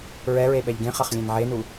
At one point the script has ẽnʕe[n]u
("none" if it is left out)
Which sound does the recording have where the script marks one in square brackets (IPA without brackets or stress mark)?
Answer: n